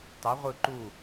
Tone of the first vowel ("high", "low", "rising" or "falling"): rising